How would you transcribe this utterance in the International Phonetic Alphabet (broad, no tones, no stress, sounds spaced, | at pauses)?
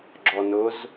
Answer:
ɡ͡ǁ ɔ n ʊ z